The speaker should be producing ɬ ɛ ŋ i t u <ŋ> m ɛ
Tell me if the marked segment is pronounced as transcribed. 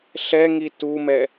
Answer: no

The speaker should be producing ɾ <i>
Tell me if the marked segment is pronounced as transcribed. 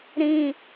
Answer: no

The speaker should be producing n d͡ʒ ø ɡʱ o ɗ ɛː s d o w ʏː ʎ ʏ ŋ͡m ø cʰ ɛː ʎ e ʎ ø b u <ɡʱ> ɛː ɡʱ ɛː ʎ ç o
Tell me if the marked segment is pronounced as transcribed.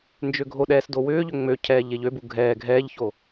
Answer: yes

